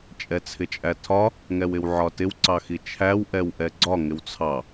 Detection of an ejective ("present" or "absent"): present